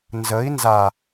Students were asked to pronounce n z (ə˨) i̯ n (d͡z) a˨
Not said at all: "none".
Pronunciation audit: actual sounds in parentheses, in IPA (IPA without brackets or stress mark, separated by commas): ə˨˦, z